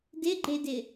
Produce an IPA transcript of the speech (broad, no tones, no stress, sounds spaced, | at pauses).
d ɪ ɡ͡ǃ e d ɪ